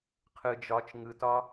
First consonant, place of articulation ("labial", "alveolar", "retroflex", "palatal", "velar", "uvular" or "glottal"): uvular